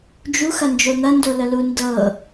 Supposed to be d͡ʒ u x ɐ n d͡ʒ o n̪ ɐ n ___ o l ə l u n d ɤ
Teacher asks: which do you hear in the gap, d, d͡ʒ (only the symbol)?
d